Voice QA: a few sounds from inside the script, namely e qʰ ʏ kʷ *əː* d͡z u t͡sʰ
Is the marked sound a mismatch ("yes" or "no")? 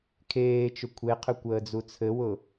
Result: no